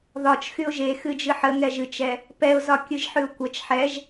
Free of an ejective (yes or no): yes